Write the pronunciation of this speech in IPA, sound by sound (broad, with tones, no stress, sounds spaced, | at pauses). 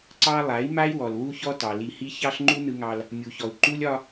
ǀ ɑ˦ lˠ a˨˦ i̯ m a˦ i̯ w ɔ˨ l w u˦ ç ɔ˦ t ɑ˨ l i˨ h i˦ ç ɑ˦ ɬ ŋ͡ǃ u˦ n ɯ˦ ŋ ɑ˦ l | mʲ u˨ ç ɔ˨ u̯ ǃ u˦ lʲ ɒ˦